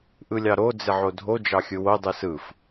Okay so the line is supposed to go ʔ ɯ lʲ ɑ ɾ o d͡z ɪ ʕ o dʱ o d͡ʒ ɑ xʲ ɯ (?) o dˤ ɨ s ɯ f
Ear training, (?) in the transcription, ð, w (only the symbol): w